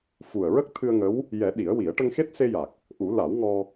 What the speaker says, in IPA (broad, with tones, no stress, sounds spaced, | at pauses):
f u˨˩ ə̯ ɹ ə˦˥ k̚ t̪ʰ ɨ˧ ə̯ ŋ ə˧˥ w | j ɛ˨˩˦ ɗ i˨˩˦ ə̯ w i˨˩˦ ə̯ ʈ ə˧ ŋ x e˦˥ t̚ s e˧ j a˨˩ k̚ | ʔ u˨˩˦ l a˨˩˦ w ŋ ɔ˧